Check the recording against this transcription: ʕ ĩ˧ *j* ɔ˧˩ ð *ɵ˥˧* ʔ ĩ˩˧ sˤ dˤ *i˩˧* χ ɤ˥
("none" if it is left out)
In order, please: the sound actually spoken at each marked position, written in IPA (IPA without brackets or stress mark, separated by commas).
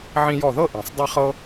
j, ɤ˥˧, i˥˧